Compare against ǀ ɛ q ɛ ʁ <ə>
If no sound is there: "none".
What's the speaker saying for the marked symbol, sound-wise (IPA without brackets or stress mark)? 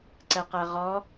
ɔ